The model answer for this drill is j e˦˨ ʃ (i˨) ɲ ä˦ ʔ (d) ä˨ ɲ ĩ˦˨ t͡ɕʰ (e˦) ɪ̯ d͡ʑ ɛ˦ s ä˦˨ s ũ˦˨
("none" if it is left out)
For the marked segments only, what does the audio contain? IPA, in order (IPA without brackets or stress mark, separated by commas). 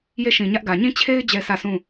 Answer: ĩ˨, ɡ, e˦